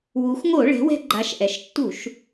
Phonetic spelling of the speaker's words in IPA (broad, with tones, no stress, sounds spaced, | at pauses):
w u˩˧ x ŋ o˧˩˧ ɭ ɛ̤˩˧ w ɛ̤˧ ɡ͡ǃ a˩˧ ʃ ʔ ɛ˩ ʃ tː u˧˩˧ ʃ